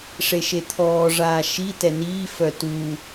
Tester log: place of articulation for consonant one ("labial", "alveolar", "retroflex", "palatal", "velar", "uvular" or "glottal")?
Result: retroflex